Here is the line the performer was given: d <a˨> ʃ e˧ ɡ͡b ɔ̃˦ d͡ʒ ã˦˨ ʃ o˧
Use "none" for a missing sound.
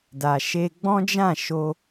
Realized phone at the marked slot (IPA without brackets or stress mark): a˨